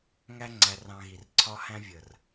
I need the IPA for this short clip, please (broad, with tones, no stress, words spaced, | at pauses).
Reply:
ŋæ˦ŋ͡ǀæ˧rɑ̃˧ɣi˨r ǀʰɒ˧hæ̃˧vʲə˨r